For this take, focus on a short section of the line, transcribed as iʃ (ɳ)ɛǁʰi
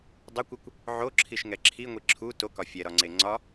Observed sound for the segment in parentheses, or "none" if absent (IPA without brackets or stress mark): ŋ